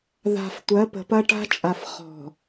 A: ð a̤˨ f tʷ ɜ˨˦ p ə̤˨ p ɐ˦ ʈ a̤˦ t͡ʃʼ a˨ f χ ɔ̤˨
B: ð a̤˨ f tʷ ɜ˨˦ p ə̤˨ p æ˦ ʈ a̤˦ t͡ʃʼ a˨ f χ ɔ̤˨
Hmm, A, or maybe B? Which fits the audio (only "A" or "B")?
A